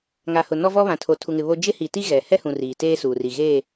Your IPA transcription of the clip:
ŋ a˨ h ʊ˨ n ɔ˦ v ɔ˦ β ã˨ tʰ o˨ tʰ u˨ ŋ ɪ˨ β o˦ d͡ʒ ɪ˦ h i˨ t i˦ ɣ ɛ˨ h ɛ˦ h ũ˨ r iː˨ t eː˦ s uː˨ r i˨ ɣ eː˦˨

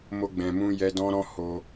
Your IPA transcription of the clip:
m o˧ ɡ͡b ɛ̃˨ m ũ˧ j ɛ˧ d ɔ̃˦ ɾ ɔ̃˦ h o˧

